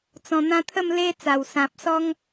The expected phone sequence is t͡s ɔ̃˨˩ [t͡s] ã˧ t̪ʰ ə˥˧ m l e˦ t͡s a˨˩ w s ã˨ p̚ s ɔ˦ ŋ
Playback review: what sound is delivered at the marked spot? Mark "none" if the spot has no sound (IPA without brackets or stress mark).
n̪